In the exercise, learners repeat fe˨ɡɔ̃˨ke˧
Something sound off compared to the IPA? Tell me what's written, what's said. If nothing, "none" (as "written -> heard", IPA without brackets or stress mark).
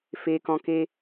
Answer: ɡ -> k